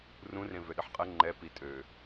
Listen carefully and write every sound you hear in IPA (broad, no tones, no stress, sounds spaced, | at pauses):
r ũ r ẽ v ø ɗ ə ħ qʼ ɜ ŋ͡ǃ ɛ p i tʼ ø